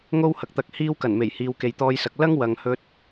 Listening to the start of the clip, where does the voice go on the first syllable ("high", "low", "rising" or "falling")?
high